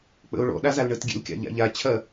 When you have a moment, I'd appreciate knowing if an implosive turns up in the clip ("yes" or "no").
yes